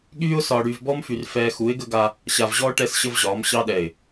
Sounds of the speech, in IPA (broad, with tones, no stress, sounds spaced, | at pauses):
ɠ yː˦ ʊ̯ s ɒː˨ ɽ yː˨ v b ɔ˦ m f y˨ r f ɛː˦ x u˨˦ ɪ̯ ɡ ə˦ ɡ a˦ | ɕ a˨ v ʑ ɔː˦ ʈ ɛ˦ s ɕ ə˦ v ʑ ɒː˨˦ m ɕ ɑ˦ ɗ ɛ˨ ɪ̯